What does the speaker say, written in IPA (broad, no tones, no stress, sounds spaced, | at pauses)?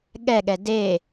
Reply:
ɠ ɛ ɠ ɛ d e